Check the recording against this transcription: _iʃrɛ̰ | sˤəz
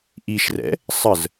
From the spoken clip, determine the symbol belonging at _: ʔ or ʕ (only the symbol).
ʔ